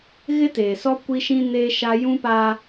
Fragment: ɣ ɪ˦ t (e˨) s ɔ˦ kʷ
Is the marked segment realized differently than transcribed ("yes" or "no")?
yes